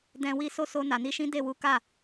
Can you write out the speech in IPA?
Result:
d ɛ̃˧ w i˦ s o˦ s o˧ n a˨ n i˨˦ ʃ ĩ˦ d e˦˨ w u˨˦ k a˦˨

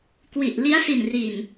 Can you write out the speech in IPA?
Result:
k w i˨˩ ʔ l i˦˥ a̯ s i˨˩ n r i˨˩ n

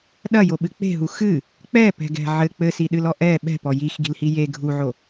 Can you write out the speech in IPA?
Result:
ɗ ɐ j o ɓ ɨ k͡p e̤ ɦ u x ɨ | k͡p ɛ p ɛ̤ ɡ ɛ̤ ʕ ɘ k͡p ɘ s i ɗ ɨ l ɔ ʔ ɛ ɓ ɛ̤ p ɔ j i x ɡ i̤ l h i j e ɡʱ u ʕ o

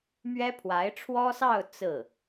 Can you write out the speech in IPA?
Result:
m ɥ ɛ˥ pʰ w a˧˥ ɪ̯ ʈ͡ʂʰ w ɔ˥ s ɑ˥˧ ʊ̯ t͡s ɹ̩˥˩

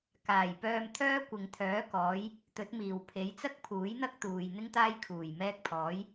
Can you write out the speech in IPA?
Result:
k aː˨˩ j p œː˧ m t̪ʰ œː˥ kʷ ɪ˨ ŋ t̪ʰ œː˨˥ k ɔː˨˧ j | t̪ ɵ˨˥ t̚ m iː˨˩ w pʰ e˨˧ j t͡s ɐ˥ k̚ pʰ uː˨˥ j n̪ ɐ˥ k̚ t̪ uː˨ j n̪ ɪ˥ ŋ t̪ aː˥ j kʰ uː˨˩ j m ɛː˧ k̚ pʰ ɔː˨˧ j

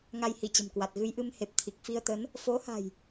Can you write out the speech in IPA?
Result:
ŋ a˧ j h i˧˩ t͡ɕ ə̤˨˩ m k w a˨˩ t̚ ɣ ɨ˧ j ʔ ɨ˧ m h e˨˩ p̚ t̪ʰ i˨˩ k̚ f i˧ ə̯ t̪ ə˨˦ n | f o˨˦ h a̤˨˩ j

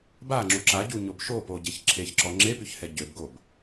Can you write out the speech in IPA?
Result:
b a ŋ͡ǁ u ǁ a ɟ u ɲ o b ʃ o p o ɟ e ç ǁʰ e ç ǁ ɔ ŋ͡ǁ e p y ç h ɛ ɟ ø b ɡ o b

